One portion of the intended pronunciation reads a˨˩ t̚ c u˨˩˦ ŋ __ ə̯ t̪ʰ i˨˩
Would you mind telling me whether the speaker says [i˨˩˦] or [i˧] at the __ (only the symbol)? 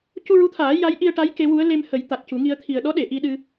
i˧